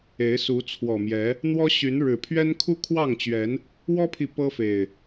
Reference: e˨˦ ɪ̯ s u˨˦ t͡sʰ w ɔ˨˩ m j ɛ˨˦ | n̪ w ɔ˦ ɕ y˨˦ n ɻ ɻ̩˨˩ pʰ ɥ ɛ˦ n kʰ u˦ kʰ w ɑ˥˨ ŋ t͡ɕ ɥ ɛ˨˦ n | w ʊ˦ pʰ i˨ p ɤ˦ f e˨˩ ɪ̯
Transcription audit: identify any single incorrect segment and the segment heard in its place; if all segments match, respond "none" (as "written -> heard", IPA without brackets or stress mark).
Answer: ʊ˦ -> ɔ˦